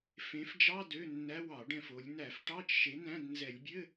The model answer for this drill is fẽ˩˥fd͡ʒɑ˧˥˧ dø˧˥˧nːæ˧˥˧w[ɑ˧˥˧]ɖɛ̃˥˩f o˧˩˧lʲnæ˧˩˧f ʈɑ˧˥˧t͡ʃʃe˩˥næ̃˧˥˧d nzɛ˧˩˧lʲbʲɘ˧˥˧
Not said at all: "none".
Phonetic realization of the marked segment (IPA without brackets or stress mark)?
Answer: ɑ˧˩˧